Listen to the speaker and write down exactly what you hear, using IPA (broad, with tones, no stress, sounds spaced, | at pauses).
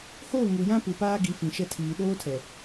h oː˦˨ ŋ u˨ j ã˦ p u˨ p aː˦ ɡ i˨˦ f ĩ˨ ʃ ɛ˦ tʰ iː˨ ɗ oː˦ tʰ ɛ˨